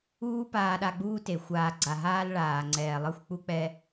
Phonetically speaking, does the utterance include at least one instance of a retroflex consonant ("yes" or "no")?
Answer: yes